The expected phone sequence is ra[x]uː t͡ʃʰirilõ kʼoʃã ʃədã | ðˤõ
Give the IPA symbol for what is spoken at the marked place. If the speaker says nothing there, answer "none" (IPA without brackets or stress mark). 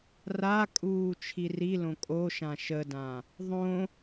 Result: kʼ